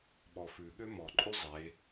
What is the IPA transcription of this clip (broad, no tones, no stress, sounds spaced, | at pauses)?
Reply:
ɓ ɔ f ʉ ɠ ø m ɔ ǃʼ y zˤ e